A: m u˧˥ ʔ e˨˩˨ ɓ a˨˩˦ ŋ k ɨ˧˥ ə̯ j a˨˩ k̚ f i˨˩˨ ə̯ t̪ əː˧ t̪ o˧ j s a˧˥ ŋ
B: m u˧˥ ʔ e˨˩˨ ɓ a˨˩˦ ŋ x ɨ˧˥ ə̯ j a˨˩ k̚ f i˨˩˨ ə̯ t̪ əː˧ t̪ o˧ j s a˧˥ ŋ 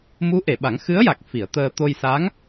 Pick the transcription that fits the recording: B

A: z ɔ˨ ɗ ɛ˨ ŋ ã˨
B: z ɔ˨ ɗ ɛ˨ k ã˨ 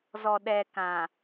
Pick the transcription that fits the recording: B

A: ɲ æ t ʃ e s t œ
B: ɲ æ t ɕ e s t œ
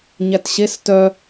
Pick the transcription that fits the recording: B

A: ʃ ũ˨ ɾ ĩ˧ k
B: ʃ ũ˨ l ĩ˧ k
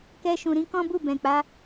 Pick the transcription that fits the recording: A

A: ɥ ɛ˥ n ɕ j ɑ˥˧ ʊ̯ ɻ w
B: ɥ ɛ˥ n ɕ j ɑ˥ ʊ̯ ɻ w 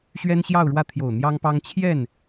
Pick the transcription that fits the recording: A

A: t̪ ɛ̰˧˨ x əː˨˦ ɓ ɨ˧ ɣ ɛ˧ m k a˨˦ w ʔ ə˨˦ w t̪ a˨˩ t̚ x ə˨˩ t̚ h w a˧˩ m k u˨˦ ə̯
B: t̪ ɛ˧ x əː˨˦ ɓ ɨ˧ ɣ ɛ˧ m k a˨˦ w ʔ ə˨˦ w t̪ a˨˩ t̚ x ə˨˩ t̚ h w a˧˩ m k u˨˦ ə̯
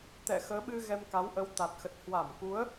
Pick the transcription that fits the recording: A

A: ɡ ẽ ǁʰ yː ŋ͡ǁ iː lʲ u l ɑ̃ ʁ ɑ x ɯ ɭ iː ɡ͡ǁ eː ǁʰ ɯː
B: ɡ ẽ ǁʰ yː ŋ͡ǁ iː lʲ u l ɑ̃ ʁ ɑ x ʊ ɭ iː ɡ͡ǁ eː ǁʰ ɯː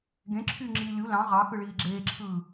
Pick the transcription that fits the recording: A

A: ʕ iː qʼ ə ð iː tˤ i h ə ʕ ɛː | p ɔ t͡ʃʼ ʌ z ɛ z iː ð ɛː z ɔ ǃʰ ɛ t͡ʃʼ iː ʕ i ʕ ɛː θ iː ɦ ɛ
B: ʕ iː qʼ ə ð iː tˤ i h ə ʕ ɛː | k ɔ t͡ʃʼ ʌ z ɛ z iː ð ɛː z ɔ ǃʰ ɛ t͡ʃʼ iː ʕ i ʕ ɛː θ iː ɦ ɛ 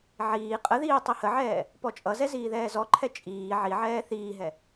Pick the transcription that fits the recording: A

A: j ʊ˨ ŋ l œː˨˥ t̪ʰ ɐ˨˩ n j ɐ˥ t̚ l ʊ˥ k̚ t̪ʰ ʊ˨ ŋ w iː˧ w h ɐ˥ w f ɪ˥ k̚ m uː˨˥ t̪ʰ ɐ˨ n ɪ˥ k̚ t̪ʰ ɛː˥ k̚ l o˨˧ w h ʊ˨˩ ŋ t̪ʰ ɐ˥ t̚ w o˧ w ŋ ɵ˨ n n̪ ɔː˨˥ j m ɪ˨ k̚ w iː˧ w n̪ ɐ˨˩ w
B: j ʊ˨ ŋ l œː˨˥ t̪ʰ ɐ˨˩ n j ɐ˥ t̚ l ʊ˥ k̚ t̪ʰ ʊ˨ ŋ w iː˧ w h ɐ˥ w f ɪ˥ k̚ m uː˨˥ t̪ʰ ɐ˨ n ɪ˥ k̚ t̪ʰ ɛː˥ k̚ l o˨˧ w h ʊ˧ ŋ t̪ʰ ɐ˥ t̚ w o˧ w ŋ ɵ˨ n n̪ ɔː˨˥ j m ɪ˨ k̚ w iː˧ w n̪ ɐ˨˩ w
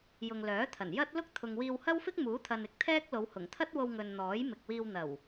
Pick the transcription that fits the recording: A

